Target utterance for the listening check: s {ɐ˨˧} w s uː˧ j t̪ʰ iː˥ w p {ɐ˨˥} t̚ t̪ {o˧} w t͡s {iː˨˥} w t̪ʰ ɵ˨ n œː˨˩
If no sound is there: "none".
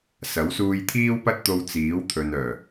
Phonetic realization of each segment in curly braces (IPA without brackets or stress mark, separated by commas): ɐ˨˥, ɐ˥, o˧, iː˨˥